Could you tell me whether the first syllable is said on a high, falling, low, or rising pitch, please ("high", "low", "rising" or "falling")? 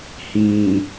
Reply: low